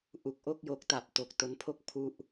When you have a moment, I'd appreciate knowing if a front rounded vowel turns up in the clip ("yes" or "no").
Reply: no